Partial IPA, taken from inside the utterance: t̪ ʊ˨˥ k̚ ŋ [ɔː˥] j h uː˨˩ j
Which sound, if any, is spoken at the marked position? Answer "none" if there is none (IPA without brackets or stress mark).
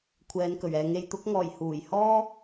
ɔː˨˩